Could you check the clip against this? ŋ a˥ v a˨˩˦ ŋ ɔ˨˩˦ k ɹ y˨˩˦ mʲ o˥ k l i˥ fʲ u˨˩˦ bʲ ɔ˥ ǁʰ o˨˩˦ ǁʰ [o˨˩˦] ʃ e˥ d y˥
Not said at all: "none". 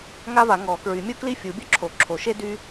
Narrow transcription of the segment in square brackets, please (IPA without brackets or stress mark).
o˨˩˦